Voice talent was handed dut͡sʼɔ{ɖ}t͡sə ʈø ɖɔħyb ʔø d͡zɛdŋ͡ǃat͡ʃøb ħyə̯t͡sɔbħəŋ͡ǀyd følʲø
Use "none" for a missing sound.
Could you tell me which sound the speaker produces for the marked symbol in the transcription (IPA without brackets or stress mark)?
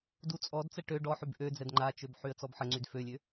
d